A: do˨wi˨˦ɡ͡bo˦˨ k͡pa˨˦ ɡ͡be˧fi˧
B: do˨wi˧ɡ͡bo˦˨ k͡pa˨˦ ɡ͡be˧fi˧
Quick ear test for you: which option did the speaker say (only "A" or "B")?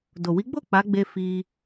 A